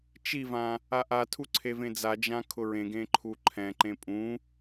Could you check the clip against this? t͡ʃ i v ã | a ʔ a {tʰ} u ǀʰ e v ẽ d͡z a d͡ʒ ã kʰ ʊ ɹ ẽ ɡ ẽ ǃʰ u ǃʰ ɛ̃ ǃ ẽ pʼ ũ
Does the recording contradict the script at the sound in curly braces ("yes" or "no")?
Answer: no